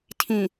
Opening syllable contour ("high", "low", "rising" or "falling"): low